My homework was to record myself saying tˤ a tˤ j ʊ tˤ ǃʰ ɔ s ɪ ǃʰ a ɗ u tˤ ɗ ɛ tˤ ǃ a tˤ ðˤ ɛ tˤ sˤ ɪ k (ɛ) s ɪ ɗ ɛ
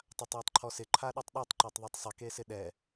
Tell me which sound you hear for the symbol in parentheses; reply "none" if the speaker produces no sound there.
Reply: e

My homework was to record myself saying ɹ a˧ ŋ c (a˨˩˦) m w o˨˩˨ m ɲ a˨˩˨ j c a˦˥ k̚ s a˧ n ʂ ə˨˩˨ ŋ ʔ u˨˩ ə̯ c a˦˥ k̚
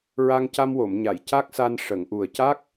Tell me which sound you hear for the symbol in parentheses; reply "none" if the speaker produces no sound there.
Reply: a˧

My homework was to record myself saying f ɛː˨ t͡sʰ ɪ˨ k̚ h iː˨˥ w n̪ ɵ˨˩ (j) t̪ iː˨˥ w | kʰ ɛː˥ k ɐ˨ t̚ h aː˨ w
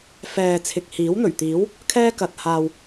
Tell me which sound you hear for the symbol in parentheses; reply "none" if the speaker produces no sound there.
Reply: ɥ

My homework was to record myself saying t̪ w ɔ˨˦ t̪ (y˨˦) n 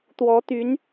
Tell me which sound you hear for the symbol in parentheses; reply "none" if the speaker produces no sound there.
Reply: y˨˦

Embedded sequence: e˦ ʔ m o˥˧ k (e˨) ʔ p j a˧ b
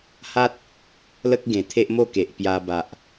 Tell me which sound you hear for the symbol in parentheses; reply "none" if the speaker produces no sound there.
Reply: e˨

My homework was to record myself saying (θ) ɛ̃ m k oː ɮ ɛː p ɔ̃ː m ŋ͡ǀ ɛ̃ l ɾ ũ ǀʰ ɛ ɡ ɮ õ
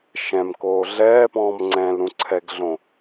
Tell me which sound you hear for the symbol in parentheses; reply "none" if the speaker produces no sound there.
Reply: ʃ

